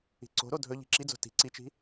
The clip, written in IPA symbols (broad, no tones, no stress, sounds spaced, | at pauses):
i̤ ǀ o̤ ɾ o dʱ ɵ ʎ i̤ ǁ i d͡z o̤ t i̤ ǀ i t͡ʃ i̤